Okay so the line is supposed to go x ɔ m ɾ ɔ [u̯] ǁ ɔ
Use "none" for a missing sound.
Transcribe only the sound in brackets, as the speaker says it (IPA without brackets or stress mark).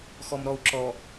u̯